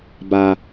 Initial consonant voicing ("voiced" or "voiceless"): voiced